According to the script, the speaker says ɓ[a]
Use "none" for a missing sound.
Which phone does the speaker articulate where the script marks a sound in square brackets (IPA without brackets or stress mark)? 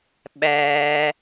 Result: æ